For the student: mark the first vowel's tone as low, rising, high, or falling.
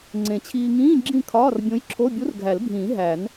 low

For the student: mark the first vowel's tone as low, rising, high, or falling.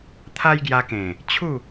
high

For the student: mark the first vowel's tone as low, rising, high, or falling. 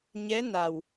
rising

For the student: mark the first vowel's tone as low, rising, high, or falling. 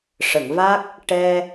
low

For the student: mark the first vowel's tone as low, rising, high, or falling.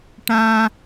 high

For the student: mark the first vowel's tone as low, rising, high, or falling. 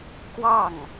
falling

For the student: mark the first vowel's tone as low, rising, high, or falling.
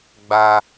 high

